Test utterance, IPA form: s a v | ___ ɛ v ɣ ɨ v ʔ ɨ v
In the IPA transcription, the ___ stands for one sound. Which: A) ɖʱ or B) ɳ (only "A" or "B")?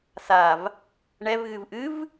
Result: B